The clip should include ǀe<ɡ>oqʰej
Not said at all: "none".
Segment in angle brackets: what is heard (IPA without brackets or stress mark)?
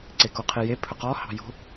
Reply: k